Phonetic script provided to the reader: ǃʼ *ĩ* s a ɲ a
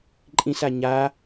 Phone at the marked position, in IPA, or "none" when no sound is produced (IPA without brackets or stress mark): ĩ